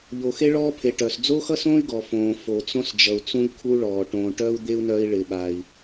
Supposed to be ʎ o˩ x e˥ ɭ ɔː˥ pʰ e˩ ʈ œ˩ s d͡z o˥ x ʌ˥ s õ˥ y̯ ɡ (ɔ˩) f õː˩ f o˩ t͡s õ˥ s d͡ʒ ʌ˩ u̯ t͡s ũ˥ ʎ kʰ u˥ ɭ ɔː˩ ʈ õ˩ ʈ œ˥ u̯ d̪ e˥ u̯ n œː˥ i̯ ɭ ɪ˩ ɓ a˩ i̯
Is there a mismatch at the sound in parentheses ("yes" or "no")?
no